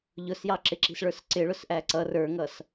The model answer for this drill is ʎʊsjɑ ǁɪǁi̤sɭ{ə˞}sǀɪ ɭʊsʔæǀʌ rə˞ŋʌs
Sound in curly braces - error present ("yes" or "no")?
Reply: no